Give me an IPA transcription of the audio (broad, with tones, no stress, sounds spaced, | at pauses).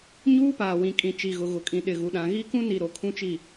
ɲ uː˦ p aː˨ w ĩ˨ kʼ ĩ˨ t͡ʃ i˨ ɣ ʊ˨ ɣ ʊ˨ kʼ ĩ˨ ɗ ɪ˨ ɣ u˨ ɗ ã˨ ɣ i˦ k ũ˦ n i˨ ɾ o˨ kʰ ũ˦ t͡ʃ i˦˨